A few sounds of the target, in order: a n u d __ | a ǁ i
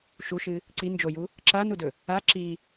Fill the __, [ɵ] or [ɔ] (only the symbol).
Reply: ɵ